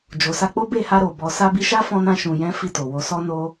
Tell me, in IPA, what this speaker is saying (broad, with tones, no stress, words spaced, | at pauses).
d͡ʒo˨sa˧k͡po˦ be˦˨ha˧ɾo˨ bɔ˨sa˧ bi˧ʃa˦fɔ̃˧nã˧ ʃũ˨jɛ̃˨˦ fi˦˨to˨ wo˨˦ sɔ˦no˦